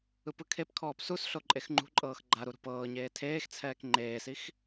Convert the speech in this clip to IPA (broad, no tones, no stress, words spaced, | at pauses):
ɯpɯkʰepkʰɔːp susɬo ǃʼexŋ͡ǃṳǃʼɤːx ɡ͡ǃaɾu ɾṳpɤːɲeː tʰeːxt͡sʰɛːk ŋ͡ǃeːsix